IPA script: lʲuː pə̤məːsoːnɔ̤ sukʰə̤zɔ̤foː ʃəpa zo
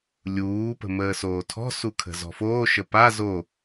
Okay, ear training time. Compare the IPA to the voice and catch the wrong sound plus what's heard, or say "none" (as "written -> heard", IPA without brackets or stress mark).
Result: n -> tʰ